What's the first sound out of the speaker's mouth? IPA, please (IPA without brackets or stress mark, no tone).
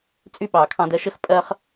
t͡sʼ